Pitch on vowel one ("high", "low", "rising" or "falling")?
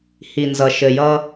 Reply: low